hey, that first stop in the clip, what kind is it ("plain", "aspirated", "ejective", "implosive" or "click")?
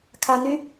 aspirated